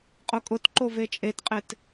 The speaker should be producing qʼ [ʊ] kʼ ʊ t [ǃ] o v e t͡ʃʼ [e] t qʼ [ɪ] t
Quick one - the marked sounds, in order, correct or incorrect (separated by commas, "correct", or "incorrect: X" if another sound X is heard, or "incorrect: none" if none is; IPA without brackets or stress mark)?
correct, correct, correct, correct